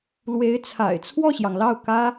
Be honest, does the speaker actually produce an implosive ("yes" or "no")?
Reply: no